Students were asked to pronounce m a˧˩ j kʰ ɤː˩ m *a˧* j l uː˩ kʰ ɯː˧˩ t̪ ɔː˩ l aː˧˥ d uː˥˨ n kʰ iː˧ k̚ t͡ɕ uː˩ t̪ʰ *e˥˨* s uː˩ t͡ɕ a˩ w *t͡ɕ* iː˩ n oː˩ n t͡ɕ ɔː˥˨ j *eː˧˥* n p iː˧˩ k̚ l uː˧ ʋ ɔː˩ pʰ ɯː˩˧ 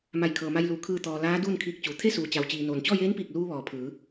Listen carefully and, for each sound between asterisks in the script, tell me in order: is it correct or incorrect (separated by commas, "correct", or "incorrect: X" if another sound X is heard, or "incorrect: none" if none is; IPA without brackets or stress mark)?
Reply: correct, correct, correct, correct